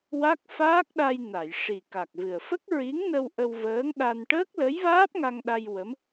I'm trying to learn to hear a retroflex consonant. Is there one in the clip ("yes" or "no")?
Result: yes